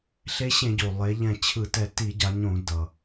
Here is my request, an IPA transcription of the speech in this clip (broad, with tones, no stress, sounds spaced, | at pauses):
ɬ e˧˥ ɕ ẽ˧˩˧ ɟ o˩ lˠ e˩˧ ʎ ɛ̃˧˩ t͡ɕʰ ɯ˧˩˧ t ɛ˧˩ t i˧˩˧ ɟ a˩˧ ɲ õ˧˩˧ d ʌ˩